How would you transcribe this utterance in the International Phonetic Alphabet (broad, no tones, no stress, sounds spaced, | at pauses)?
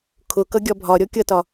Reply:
kʰ ʊ k ʌ ɡʲ ɒ bʱ ɒ ɾʲ ɔ kʲ ʌ t ɒ